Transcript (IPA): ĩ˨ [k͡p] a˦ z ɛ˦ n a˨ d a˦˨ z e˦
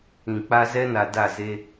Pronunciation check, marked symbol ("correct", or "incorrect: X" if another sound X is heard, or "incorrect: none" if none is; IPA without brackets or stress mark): correct